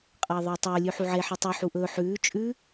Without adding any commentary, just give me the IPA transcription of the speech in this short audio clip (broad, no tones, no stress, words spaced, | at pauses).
qʼɐːðˤɐːtˤɵː lʲʉħuʕe ħɨtˤu ħuʔɵ ħʉː t͡ʃʼʉ